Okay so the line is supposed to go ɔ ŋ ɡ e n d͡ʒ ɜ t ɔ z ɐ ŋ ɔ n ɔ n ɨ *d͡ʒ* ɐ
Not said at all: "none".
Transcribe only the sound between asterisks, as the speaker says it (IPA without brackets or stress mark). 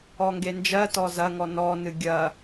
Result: ɡʲ